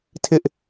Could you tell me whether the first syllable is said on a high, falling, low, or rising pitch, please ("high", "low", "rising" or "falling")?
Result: high